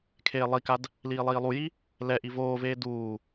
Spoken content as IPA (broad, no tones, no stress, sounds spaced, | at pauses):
kʰ eː lˠ i k a d | l iː lˠ iː lˠ u j i | l ɛ ʔ i v oː v eː d uː